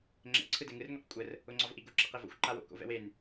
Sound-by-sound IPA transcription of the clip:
ŋ͡ǁ ɛ̰ ǀʰ ɯ d ɛ ŋ ɯ r ŋʷ e q kʷʼ ə r | ʊ ŋ͡ǀ ɒ v ʔ i ɡ ʊ ǁ ɛ q e v o̰ xʷ ǃ a w o̰ k o̰ v ɛ̰ w e n

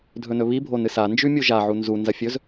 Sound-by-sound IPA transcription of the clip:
dʱ ɵ n ɵ β i bʱ o n ɨ s a n d͡ʒ ʉ mʲ u ʒ a ʕ u n z u n z ɐ fʲ ɵ z

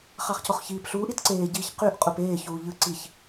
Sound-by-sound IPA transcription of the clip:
χ ɑ χ c o χ ç iː p ɬ uː ʔ i t ǀ eː ɟ iː ç q y ʔ qʼ u p eː ç uː ʎ ɯ ǀ i ç

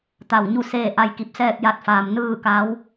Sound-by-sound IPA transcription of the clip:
t̪ a˧˩ w ɲ u˥˨ s eː˧˩ ʔ a˧ j k i˧˩ p̚ s ɛː˥˨ k̚ j a˧ t̚ f aː˩ m n ɯː˥˨ k a˧˥ w

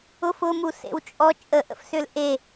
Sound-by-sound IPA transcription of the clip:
ʊ f ʊ m u s ḛ w t͡ʃʼ ɔ t͡ʃʼ ə ʔ ə̰ f s ʏ l ʔ e

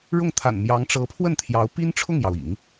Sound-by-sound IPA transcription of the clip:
ɻ ʊ˥˩ ŋ t̪ʰ a̰˨˩ n m j ɑ˧˥ ŋ ʈ͡ʂ ɤ˧˥ pʰ w ə˥˩ n t̪ʰ j ɑ˧˥ ʊ̯ p i˥ n ʈ͡ʂʰ ʊ˥˩ ŋ j ɑ˩ ʊ̯ ḭ˨˩˦ ŋ

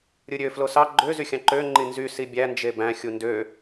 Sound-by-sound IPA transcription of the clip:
ɾʲ ɯ ɾʲ ø f l o s ɑ ɡ͡ǃ ø z y xʲ ɑ̃ ǃ ø ŋ͡ǃ i n z y s i bʲ æ n d͡ʒ e b æ̃ xʲ u n d ø

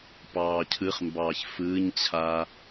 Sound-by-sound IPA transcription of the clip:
p ɑː cʰ ɯ χ m b ɑː ç f ɯː ɲ t͡ɕʰ a

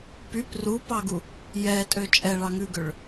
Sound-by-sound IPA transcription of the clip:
p y p r u p ɑ ɡ u | j ɛ tʼ ø t͡ʃʼ ɛ ɭ ɑ ŋ ʉ ɡ ø ɭ

